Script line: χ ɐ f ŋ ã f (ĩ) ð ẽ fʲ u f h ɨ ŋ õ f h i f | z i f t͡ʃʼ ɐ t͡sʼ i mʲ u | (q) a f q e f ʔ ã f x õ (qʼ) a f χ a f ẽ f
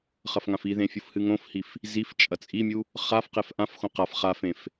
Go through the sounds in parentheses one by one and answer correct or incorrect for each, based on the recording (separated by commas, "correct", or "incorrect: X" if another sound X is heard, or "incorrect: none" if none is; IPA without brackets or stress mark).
incorrect: i, incorrect: χ, incorrect: q